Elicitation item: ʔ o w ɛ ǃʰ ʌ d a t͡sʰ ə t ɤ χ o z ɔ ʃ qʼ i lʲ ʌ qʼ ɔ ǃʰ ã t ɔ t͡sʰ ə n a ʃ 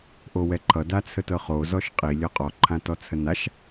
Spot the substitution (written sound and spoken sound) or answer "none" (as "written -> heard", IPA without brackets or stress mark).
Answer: none